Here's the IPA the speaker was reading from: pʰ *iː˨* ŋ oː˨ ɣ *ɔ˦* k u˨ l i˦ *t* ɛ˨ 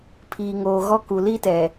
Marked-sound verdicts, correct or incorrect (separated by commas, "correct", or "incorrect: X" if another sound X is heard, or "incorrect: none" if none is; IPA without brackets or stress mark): correct, correct, correct